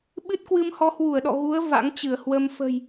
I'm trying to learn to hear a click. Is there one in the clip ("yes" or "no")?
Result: no